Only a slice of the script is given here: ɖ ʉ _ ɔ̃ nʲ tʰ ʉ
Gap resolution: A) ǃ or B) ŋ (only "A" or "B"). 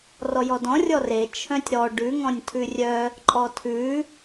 B